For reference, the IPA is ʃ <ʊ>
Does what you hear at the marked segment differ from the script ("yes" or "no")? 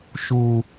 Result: yes